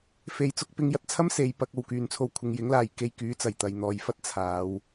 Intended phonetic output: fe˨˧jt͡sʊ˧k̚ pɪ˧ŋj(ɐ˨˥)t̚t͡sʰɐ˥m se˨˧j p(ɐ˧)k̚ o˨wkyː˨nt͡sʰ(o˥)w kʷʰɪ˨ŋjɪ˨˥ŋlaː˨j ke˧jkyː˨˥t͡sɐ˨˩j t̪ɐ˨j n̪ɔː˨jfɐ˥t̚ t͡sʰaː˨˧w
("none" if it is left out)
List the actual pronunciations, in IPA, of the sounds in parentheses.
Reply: ɐ˧, ɐ˧, o˧

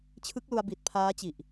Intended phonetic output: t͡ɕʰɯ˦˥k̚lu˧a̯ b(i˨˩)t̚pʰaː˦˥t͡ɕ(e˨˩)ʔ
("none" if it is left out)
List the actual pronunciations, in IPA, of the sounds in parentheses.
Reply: i˨˩, i˨˩

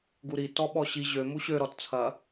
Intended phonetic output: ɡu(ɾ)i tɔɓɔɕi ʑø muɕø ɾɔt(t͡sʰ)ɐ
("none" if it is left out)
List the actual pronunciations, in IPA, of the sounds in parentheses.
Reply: ɾ, t͡sʰ

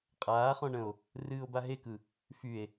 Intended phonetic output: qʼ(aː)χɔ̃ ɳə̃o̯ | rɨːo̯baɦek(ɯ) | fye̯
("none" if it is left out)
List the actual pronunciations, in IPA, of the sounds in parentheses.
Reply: aː, ɯ

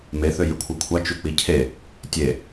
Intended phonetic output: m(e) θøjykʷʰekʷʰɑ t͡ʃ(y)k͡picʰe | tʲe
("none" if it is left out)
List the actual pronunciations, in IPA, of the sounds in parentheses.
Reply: e, y

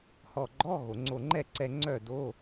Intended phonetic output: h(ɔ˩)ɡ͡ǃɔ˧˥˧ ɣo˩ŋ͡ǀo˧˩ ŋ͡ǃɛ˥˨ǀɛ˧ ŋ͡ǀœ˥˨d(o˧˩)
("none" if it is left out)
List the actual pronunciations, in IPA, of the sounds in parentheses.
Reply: ɔ˧˩, o˧˥˧

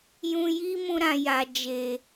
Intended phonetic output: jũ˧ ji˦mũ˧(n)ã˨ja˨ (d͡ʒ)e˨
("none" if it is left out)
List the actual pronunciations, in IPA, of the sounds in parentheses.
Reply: ɾ, d͡ʒ

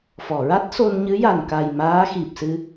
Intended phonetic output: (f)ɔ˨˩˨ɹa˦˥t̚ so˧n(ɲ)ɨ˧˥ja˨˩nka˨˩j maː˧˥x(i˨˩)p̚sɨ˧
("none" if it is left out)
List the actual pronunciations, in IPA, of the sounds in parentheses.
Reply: f, ɲ, i˨˩

